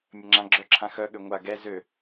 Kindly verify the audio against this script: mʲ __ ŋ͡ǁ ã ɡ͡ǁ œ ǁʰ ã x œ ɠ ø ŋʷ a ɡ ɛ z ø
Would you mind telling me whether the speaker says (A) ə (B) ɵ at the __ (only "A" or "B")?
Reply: A